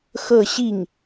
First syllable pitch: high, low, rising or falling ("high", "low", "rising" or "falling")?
falling